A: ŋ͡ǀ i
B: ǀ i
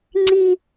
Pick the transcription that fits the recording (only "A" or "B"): A